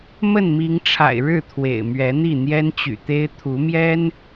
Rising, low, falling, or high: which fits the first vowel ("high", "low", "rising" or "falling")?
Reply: falling